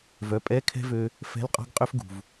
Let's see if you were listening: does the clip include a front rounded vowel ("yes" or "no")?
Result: yes